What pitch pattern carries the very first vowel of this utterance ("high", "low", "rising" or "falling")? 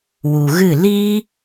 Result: low